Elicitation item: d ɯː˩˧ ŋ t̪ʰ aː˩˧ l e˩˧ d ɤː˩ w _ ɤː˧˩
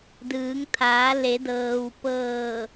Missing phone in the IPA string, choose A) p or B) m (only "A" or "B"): A